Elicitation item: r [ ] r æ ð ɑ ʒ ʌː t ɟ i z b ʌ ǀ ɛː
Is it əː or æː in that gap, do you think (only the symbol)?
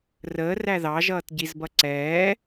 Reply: əː